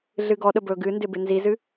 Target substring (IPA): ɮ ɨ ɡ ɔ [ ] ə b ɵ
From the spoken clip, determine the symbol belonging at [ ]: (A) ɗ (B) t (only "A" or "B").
A